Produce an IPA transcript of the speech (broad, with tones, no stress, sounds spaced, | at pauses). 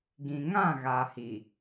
ɡ ĩ˨ ŋ ã˦˨ ɣ aː˨ h i˨